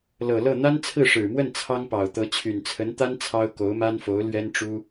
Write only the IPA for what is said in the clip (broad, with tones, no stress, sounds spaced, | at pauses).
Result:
l ɤ˨˩ l ɤ˥˩ n̪ a˥ n t͡sʰ ɹ̩˥˩ ʂ ɻ̩˨˩ m w ə˥˩ n t͡sʰ ɑ˥ ŋ p ɑ˨˩ ʊ̯ t̪ ɤ˧˥ t͡ɕʰ y˨˩ n t͡sʰ ə˧˥ n t̪ a˥ n t͡sʰ ɑ˥ ʊ̯ k o˧˥ ʊ̯ m a˥ n f o˧˥ ʊ̯ l ɥ ɛ˥ n ʈ͡ʂ u˥